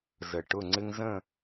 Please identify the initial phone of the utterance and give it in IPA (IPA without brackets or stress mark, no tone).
z